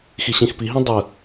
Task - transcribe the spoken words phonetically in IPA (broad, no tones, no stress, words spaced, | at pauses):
xiɕĩxpiɦĩ dˤɯ